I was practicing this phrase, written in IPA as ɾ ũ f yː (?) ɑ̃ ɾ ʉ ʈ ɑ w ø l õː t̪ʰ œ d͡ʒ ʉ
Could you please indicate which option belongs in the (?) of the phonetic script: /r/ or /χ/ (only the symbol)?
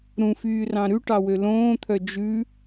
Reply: r